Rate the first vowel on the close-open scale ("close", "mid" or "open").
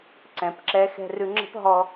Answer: mid